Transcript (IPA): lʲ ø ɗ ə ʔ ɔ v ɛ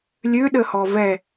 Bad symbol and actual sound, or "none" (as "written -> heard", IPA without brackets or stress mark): ʔ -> h